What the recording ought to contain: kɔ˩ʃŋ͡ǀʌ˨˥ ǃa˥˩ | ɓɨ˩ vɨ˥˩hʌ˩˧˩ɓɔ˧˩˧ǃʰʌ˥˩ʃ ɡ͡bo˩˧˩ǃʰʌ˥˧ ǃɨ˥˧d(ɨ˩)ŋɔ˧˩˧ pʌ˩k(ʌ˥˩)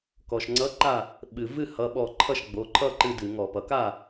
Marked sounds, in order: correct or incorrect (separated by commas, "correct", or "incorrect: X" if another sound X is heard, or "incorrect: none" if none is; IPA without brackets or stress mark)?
incorrect: ɨ˧˩˧, incorrect: a˥˩